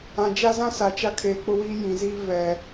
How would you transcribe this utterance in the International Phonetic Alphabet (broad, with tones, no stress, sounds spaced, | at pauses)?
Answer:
ã˨ d͡ʒ a˦ z ã˦ s a˨ t͡ʃ a˦ kʰ eː˨ k͡p ʊ˦ w iː˦ j ĩ˨ z iː˦ v ɛ˨